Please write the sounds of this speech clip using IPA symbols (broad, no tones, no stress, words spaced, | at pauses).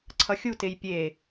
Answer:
ǀʰʌxʲutej pʲe